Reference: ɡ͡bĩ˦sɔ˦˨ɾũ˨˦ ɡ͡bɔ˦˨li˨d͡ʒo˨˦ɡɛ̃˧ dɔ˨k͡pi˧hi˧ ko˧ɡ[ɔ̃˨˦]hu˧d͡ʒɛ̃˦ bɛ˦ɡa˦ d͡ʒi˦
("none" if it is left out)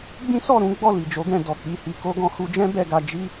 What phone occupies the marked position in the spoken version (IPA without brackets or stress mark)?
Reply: ɔ̃˧